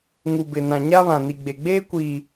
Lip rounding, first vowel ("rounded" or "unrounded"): rounded